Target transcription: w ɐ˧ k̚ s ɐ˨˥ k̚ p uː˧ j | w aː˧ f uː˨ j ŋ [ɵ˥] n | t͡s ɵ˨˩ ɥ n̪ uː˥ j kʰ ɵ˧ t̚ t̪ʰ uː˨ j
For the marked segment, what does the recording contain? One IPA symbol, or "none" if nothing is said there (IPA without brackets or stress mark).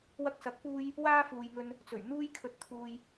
ɵ˨